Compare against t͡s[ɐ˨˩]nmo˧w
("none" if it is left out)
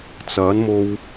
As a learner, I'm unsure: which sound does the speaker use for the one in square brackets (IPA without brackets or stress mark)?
ɐ˨˥